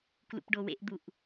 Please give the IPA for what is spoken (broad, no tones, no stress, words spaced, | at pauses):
klṵpɖowḛʔd̪uʔ